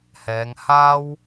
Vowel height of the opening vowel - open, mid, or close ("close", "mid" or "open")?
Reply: mid